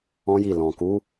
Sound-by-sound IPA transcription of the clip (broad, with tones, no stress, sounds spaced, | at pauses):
ɔ̃˦ j i˦˨ l ɔ̃˨ k u˨˦